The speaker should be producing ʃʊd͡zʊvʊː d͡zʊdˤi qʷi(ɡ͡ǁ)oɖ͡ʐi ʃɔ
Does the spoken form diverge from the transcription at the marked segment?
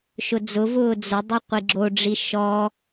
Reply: no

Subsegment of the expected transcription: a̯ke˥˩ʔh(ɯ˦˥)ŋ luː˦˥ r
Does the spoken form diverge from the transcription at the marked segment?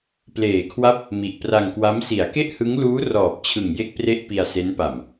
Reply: no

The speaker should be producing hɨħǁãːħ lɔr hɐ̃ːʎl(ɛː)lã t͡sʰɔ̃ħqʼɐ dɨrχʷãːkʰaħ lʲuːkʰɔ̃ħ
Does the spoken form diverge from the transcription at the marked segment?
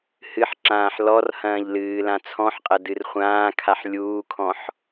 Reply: yes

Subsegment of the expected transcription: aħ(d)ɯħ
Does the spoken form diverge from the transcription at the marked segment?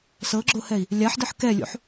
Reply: no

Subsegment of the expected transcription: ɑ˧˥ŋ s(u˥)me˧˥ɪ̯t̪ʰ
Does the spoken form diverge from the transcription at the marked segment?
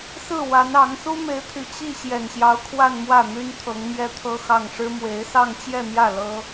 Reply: no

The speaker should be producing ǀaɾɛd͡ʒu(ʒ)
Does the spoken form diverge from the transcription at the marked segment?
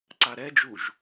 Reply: no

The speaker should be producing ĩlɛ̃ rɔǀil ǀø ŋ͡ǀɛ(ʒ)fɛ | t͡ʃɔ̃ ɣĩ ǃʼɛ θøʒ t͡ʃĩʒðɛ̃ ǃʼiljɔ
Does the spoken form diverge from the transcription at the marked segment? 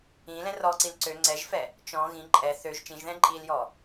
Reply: no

